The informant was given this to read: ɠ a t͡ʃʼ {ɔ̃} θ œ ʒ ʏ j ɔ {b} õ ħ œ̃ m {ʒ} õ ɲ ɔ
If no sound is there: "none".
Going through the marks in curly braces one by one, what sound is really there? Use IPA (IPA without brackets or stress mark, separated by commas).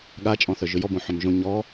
ɔ̃, b, ʒ